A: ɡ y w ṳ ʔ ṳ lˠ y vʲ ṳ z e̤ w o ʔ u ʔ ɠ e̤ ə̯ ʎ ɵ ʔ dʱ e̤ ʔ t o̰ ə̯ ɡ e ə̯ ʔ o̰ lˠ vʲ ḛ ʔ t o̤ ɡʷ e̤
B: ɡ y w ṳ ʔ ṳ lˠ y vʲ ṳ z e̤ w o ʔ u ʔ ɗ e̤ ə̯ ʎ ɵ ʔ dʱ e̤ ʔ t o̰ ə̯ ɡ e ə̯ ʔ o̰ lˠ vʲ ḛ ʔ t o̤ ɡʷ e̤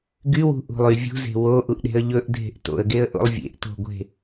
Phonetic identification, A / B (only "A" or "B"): B